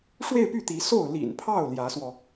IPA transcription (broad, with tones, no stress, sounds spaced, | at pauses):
ʂ w e˥˧ ɪ̯ p y˥˩ t̪ i˧˥ s o˥˩ ʊ̯ l ḭ˨˩ n pʰ ɑ˥˩ ʊ̯ l j ä˧˥ s w ɔ˧